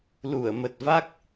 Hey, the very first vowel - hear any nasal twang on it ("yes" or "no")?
no